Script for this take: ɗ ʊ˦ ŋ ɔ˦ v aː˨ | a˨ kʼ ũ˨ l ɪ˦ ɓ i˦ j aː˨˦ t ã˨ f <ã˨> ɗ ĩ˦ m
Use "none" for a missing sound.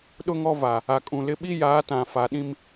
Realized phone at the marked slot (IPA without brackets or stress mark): a˨